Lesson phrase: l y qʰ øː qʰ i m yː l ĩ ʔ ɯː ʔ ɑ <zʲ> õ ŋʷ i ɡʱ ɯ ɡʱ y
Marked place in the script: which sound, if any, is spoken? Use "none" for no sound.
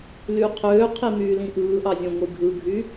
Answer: zʲ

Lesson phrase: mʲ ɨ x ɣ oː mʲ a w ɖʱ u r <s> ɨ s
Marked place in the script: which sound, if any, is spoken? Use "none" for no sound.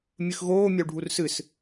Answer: s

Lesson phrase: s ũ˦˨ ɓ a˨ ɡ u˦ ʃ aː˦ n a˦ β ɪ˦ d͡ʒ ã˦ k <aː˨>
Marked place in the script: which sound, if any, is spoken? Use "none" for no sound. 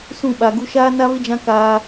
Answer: aː˦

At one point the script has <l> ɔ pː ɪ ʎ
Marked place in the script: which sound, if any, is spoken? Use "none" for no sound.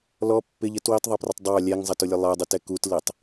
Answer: l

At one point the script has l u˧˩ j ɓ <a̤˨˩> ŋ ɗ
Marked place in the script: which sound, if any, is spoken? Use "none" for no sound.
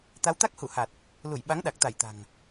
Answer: a˨˦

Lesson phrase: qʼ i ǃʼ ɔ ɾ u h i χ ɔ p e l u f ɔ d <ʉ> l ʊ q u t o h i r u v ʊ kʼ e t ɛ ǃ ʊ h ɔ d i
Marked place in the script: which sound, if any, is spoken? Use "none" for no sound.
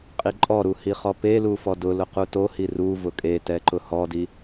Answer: ʊ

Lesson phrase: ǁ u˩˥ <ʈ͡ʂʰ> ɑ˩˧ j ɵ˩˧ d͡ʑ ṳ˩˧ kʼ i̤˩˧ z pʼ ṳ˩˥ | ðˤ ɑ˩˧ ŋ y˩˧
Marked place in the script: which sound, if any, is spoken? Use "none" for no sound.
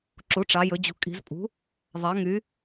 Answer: ʈ͡ʂ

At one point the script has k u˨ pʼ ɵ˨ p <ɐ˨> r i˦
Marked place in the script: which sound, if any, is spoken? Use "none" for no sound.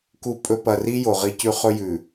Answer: ɐ˨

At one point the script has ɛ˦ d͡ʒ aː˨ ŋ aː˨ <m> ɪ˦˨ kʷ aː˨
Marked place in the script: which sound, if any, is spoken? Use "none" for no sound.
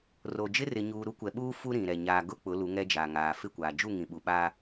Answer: f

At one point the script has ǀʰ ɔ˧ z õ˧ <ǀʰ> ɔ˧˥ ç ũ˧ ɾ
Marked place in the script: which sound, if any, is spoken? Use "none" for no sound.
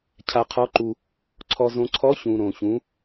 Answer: ǀʰ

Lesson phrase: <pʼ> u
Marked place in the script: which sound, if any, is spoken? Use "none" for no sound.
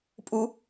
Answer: pʼ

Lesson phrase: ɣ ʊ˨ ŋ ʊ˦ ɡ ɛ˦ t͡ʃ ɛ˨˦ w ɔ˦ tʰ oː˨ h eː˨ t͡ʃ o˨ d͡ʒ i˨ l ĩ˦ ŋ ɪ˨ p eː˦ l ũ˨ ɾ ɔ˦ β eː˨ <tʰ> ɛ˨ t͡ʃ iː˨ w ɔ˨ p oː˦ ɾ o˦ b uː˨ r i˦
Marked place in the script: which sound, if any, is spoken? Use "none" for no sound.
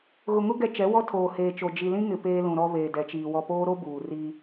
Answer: d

